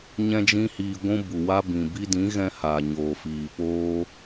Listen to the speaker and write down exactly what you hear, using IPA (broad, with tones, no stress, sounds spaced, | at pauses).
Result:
ɲ ɛ̃˦ d͡ʒ ĩ˦ h iː˧ ɡʷ ũ˧ b u˨ w a˧ b ĩ˨ b i˧ d ĩ˨˦ ɣ ɛ̃˧ h a˨ ɲ oː˨ f iː˨ p oː˧